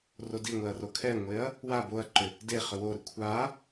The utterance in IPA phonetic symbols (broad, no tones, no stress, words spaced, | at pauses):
rodiŋʷɛɐ̯ rokʰɛŋʷeɐ̯ | wa boɐ̯ǃʏ | de χʏwoɾʏ kʷʰa